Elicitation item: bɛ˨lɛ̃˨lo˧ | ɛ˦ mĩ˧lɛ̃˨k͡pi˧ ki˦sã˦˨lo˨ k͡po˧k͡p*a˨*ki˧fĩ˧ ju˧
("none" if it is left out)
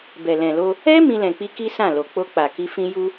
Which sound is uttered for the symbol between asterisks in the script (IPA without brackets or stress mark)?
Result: a˨